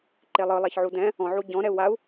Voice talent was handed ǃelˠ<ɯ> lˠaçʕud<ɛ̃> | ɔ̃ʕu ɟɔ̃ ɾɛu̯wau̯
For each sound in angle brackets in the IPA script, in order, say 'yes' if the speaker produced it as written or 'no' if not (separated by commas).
yes, yes